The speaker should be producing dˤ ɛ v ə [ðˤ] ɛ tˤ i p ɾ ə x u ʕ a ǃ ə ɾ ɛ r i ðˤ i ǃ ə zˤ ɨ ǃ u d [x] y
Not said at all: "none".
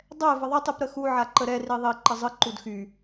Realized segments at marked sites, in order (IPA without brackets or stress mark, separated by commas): ðˤ, x